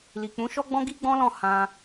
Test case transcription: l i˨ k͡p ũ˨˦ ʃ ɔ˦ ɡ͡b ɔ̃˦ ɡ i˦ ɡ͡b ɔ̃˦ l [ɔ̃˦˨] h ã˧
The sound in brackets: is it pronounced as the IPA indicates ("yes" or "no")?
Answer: yes